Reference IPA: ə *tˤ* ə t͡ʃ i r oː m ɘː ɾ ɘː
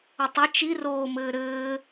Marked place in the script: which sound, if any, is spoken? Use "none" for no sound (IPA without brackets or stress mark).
tˤ